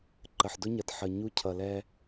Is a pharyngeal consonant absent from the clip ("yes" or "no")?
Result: no